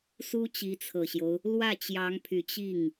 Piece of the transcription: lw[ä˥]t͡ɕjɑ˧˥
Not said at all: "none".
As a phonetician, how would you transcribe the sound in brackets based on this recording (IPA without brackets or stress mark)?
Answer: ä˥˩